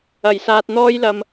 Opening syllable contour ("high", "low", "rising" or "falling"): low